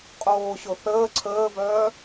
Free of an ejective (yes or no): no